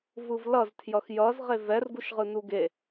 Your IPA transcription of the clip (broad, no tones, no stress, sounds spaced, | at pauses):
v ɯ v l ʌ z tʰ j ʌ x j ʌ z ʁ e v ɛ r ɡ u ʃ ʁ ɯ n u ɡ e